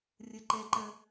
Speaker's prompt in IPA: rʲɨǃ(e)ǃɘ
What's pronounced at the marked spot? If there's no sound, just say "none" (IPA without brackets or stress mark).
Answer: e